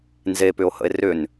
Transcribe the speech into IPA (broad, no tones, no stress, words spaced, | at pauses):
nzepʏo̯hə̰e̯ rʏn